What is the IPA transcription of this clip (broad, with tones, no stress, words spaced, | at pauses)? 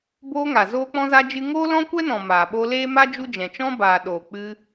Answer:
boː˧ŋa˨ zoː˦k͡pɔ̃˦za˦ d͡ʒɨ˦ ŋoː˦lɔ̃˦kʷɛ˦nɔ̃˨ maː˨ɓo˧leː˦ma˦ d͡ʒu˦d͡ʒɛ̃˨ t͡ʃɔ̃˦baː˨ ɗoː˨k͡pɨ˧